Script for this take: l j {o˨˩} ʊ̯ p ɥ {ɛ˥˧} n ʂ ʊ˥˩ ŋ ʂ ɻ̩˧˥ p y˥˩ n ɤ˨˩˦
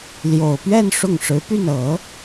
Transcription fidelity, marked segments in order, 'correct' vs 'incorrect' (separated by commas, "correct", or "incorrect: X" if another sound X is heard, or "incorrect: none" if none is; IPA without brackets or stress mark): correct, correct